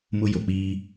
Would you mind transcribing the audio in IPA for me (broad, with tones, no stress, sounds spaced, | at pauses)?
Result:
m ʊ˦ j o˨ k͡p iː˦